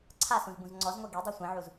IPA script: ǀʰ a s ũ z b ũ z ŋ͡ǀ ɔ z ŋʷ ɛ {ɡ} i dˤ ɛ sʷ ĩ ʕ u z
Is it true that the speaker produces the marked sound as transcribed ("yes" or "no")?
yes